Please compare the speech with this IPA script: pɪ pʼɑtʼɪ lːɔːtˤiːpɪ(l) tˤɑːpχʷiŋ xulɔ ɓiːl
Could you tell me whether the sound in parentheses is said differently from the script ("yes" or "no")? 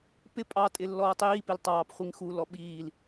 no